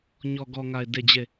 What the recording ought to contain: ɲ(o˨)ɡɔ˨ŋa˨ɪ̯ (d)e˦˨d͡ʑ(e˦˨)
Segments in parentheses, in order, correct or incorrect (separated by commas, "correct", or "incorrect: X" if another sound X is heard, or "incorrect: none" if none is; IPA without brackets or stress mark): incorrect: ɔ˨, correct, correct